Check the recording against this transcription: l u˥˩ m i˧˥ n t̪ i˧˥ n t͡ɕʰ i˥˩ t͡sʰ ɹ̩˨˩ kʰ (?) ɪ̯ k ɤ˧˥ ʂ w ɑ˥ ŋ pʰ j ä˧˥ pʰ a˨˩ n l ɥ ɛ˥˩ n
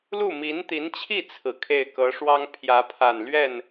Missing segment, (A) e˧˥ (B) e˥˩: B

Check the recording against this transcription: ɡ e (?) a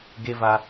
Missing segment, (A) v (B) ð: A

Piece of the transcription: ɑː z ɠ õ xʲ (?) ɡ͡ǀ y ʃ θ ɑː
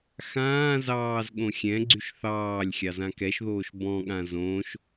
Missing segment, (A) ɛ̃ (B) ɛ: A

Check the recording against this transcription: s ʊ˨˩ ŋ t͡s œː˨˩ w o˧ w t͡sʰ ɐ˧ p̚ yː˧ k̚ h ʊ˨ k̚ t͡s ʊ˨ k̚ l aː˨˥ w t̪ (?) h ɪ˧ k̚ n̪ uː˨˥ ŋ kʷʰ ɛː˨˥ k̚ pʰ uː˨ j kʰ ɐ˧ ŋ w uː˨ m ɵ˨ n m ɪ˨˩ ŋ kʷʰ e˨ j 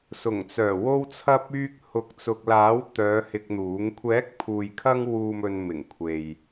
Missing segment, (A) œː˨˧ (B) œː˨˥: A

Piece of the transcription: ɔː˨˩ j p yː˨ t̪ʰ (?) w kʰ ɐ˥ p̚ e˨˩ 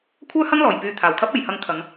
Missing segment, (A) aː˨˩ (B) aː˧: A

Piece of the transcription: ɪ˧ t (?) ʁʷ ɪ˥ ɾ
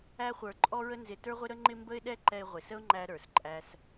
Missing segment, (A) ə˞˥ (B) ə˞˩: A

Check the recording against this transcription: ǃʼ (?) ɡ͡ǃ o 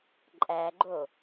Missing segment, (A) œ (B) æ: B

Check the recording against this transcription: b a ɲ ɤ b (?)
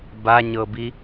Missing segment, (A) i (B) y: A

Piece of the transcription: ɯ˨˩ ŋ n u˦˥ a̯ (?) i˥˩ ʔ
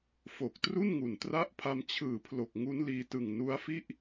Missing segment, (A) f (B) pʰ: A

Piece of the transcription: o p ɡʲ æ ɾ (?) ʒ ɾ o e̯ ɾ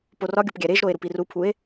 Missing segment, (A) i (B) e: B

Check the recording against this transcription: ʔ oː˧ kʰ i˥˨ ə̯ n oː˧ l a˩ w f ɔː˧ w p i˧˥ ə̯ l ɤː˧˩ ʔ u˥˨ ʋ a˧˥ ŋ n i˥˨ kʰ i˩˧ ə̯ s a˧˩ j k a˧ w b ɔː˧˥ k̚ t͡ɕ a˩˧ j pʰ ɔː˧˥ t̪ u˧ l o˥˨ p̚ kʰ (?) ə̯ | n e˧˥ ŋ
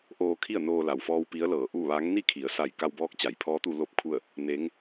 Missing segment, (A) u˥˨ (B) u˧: A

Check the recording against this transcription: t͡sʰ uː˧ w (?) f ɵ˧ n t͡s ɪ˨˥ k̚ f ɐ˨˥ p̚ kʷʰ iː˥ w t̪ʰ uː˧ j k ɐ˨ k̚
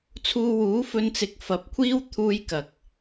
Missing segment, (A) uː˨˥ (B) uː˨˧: A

